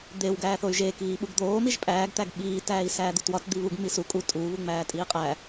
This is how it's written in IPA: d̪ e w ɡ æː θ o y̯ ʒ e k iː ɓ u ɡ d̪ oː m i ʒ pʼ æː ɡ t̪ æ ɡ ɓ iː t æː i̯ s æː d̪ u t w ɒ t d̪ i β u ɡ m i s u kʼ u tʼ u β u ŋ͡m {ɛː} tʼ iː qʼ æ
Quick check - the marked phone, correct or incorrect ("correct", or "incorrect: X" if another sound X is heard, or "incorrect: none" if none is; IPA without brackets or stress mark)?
incorrect: æː